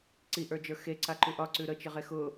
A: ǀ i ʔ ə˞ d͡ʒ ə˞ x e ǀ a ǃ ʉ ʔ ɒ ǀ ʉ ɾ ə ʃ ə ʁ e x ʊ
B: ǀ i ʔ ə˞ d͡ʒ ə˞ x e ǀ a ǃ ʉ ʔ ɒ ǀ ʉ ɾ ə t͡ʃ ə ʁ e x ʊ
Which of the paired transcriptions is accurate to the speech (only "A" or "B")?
B